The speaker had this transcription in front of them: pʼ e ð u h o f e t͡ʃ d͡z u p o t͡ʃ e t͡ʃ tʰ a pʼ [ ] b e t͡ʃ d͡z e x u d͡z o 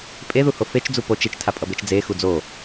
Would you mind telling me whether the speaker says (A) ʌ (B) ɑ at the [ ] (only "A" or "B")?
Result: A